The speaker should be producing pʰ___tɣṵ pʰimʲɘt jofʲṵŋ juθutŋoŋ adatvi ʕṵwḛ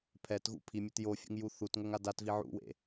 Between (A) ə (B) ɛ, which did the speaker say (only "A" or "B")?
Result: B